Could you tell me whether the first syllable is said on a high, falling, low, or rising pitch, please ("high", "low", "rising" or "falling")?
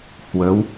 rising